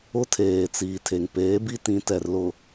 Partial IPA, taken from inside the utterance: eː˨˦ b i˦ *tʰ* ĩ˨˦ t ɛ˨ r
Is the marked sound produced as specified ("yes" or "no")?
no